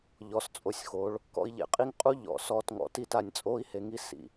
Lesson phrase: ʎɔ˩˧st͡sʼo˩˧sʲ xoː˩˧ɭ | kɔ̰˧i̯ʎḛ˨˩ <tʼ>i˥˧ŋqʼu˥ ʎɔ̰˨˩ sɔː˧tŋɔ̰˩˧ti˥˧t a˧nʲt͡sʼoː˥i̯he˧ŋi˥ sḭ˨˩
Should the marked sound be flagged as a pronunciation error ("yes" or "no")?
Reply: yes